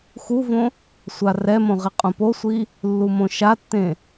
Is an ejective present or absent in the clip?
present